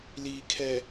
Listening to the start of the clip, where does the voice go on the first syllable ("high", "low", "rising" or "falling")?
low